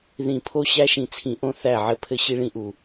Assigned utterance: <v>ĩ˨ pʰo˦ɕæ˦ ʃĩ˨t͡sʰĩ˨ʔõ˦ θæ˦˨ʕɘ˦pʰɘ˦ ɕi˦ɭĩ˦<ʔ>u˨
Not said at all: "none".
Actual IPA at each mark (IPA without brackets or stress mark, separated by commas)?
ð, ʔ